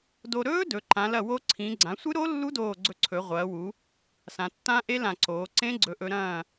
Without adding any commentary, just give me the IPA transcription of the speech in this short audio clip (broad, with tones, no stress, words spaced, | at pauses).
do˧ ɾɵː˦˥ dɵ˩˧ǃã˩˧ lɐ˧˩wo˧ ǀʰĩ˩˧ɡ͡ǀã˩˧sʷɨ˦˥ɾo˦˥ lːu˦˥doː˧˩ ɡ͡ǀɵ˧ǀʰɵ˩˧ʁʷɐː˩˧wu˩˧ | sã˩˧tːã˦˥ʔe˦˥ lã˧˩ǀoː˩˧ǀẽ˦˥ ɡ͡ǀɵ˩˧ʔɵ˩˧ɾɐ̃ː˧˩